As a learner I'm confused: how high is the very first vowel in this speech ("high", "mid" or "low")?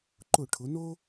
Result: high